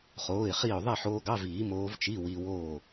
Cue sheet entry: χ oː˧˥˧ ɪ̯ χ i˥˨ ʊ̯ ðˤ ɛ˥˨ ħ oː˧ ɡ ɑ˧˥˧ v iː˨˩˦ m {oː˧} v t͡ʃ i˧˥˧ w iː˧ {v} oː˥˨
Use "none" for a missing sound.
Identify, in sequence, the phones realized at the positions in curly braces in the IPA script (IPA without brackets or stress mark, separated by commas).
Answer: oː˧˥, w